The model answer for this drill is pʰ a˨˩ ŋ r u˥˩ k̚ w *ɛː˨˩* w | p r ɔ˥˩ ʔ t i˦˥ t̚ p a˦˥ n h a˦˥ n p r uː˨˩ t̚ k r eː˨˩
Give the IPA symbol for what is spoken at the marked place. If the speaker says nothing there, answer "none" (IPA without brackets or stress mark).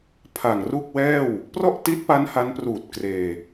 ɛː˥˩